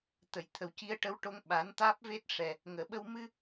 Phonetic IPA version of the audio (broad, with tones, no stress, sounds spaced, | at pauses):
t̪ ə˨˩˨ j t̪ʰ ə˨˩ w c i˧ ə̯ ʈ ə˧ w ʈ o˧ ŋ ɓ a˨˩˦ n t̪ aː˦˥ p̚ v e˦˥ t̚ ʂ ɛ˨˩ | ŋ əː˨˩ ɓ ə˧ w m ɨ˧